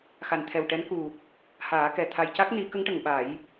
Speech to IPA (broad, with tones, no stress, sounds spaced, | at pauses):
x a˨˩ n t̪ʰ ɛ˨˩ w ʈ ɛ˧˥ n k u˨˩ | h aː˨˩˦ k ɛ˨˩ t̪ʰ a˨˩ j c a˦˥ k̚ n i˨˩˦ k ə˧˥ ŋ ʈ ə˨˩ ŋ ɓ a˨˩˦ j